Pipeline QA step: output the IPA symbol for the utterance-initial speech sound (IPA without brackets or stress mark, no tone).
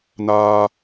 n